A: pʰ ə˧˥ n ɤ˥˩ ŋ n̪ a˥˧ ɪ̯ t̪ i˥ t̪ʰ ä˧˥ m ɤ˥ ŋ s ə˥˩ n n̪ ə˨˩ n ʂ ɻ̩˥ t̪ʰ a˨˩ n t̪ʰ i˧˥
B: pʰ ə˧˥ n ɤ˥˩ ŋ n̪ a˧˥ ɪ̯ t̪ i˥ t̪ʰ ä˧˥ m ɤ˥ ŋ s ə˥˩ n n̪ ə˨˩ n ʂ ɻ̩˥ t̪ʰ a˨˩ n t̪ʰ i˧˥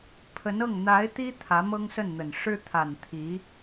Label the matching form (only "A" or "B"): B